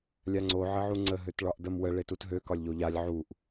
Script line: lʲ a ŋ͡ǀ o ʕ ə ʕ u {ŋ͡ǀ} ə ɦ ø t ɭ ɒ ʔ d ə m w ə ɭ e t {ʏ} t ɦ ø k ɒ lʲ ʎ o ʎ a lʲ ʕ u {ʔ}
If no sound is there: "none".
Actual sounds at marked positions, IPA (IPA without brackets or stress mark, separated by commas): ŋ͡ǀ, u, ʔ